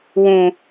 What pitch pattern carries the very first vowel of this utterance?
low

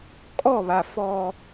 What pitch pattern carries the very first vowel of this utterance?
falling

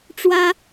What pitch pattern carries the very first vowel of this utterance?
high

